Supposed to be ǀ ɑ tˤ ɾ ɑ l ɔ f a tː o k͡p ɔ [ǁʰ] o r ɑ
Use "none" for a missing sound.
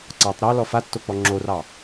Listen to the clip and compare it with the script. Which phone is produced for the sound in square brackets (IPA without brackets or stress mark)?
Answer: ŋ͡ǁ